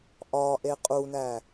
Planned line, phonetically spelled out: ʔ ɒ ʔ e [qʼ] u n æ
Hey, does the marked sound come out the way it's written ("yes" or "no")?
yes